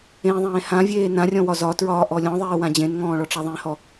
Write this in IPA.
ẽðˤẽː hãvʲeː nãrʲɔ̃wɒ zɒtɹɒːʔɔ lʲɔ̃ðˤeːwã d͡ʑẽnŋɔ̃ːɭɔʈ͡ʂa ðˤẽhɔ

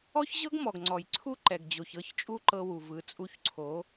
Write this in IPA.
ɔ˦çʑɤ˦ɡmɔ˨ɡ ŋ͡ǀɔ˨j ǀʰu˦ ǃɛ˨ɡd͡ʑo˨ç ɤ˦˨çt͡ʃʼu˦ ǃɤ˦wu˨vɯ˨˦t͡sʼu˦ç ǀʰo˨˦

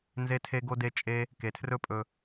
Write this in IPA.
nze˦tʰe˦ɡo˦de˦ t͡ʃʼe˦ | ke˨tʰrɵ˦pʼɵ˧

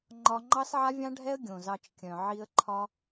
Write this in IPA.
ŋ͡ǃɒ˧ ŋ͡ǃɑ˦sʕa˦vʲɑ̃˦ɖʱɛ˦ə̯ ɡʲõ˨zɑ˧t͡ʃkʲœ̃˨ ʕi˧ə̯ ǃʰɒ˦

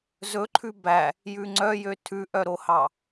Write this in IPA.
zɵǃʰʉ bæ | jʉŋ͡ǀœjø tʰʉʔœɾohɑ

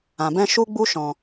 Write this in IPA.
ã˨bɛ̃˦ ʃu˦ɡ͡bu˦ ʃɔ̃˨

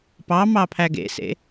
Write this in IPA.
pɑmɑ pʰæɡḛsḛ

